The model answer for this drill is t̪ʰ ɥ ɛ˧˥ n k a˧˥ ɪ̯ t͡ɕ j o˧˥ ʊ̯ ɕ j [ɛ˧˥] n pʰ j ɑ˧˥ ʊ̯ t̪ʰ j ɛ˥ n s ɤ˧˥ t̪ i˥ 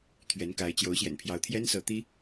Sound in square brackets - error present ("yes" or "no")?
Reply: yes